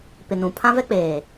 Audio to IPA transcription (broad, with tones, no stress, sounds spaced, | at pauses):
p ɪ˨ n ũ˨ pʰ ã˦ v ɛ˦ k͡p eː˨